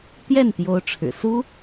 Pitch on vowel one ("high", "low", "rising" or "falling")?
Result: falling